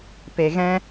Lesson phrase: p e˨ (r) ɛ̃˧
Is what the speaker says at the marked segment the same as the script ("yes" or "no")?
no